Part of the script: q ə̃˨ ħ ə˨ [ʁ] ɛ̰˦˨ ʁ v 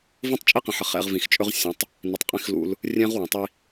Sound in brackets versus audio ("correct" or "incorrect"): incorrect